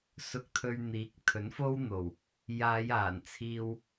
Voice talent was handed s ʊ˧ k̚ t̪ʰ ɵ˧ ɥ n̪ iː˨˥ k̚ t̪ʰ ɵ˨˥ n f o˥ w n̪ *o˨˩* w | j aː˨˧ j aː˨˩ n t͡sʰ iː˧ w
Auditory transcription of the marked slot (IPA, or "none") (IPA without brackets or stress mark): o˨˩